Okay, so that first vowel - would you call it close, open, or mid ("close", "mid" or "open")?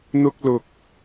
close